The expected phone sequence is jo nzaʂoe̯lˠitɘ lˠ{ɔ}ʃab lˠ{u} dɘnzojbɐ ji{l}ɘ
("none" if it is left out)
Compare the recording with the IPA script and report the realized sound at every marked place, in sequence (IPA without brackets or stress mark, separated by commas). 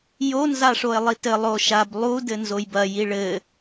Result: o, u, ɭ